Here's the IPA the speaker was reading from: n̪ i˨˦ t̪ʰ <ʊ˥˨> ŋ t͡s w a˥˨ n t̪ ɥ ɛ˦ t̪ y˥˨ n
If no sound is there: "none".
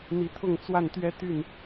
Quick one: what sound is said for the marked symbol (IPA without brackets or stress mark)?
ʊ˥˨